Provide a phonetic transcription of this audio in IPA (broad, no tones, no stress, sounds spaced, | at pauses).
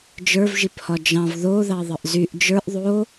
d͡ʒ ə˞ v ʒ i p h ɒ d͡ʒ ɑ̃ v ð o ð ɑ ðˤ ə ʔ z y ʔ d͡ʒ ə˞ ʔ ðˤ o